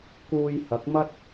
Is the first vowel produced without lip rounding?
no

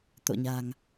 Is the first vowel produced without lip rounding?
no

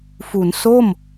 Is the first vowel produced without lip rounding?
no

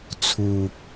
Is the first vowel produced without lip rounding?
no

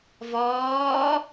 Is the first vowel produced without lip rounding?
no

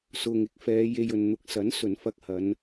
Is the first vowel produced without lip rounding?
no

